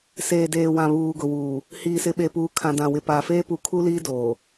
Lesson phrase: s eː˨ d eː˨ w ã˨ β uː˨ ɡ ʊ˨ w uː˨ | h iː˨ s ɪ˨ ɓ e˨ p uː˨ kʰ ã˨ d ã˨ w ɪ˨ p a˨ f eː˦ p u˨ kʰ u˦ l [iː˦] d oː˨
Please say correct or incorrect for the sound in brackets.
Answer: correct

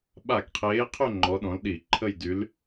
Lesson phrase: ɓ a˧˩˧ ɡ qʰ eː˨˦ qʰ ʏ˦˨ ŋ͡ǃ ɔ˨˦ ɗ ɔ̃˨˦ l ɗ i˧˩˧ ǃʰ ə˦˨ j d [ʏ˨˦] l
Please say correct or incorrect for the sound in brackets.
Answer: incorrect: y˨˦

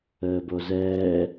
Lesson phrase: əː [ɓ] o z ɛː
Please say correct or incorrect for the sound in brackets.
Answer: incorrect: b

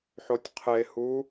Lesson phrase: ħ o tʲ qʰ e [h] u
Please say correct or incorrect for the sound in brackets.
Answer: correct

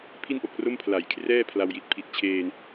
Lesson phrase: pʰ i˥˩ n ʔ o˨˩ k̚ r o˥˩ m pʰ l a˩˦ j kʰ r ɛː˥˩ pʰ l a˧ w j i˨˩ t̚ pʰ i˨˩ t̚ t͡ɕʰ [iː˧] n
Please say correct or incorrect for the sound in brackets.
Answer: incorrect: eː˧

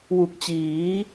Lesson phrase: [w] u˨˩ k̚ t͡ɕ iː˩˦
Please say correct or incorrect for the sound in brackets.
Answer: correct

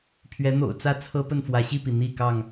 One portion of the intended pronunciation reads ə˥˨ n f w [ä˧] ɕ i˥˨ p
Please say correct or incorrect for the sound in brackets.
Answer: incorrect: ä˨˦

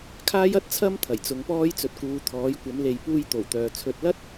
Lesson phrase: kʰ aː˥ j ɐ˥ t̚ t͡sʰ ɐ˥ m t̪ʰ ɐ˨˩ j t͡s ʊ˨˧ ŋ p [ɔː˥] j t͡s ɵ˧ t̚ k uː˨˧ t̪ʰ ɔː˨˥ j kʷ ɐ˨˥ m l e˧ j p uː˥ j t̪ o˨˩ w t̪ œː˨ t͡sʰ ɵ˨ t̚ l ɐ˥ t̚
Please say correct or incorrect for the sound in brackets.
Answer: correct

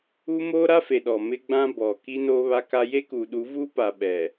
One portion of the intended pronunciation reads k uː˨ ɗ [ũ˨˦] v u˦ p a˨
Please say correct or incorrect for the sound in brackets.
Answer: incorrect: u˨˦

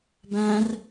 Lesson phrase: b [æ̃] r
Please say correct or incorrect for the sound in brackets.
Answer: correct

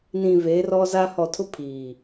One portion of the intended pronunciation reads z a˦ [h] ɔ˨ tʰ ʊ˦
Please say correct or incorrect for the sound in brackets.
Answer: correct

